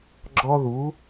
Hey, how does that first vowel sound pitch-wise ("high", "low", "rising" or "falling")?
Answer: high